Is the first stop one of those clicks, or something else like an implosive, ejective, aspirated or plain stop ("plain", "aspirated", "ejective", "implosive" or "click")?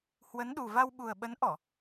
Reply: implosive